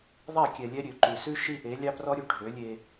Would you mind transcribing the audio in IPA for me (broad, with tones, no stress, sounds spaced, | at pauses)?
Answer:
ðˤ ɛ˦˨ kʲ ɛ˨ lʲ ɛ˦ ɾʲ ø˨ ǃ ʉ˨ s ʉ˦ ʃ i˦ ʔ e˨˦ lʲ ɑ˦ p r ɔ˦ ɾʲ ø˦ ɖʱ ø˨˦ lʲ e˦